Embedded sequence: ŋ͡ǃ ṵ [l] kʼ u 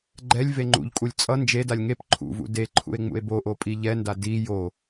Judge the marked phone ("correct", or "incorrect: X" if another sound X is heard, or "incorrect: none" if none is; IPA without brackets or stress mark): incorrect: ʎ